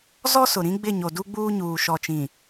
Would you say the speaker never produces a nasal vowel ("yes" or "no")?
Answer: no